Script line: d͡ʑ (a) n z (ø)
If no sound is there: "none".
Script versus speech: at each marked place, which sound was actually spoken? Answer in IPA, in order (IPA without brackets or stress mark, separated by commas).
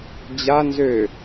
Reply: a, ø